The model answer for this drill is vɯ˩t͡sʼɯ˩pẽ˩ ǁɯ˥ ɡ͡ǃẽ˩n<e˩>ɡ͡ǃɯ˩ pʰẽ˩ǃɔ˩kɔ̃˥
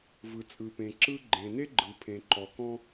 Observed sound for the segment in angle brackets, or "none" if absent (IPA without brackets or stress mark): e˥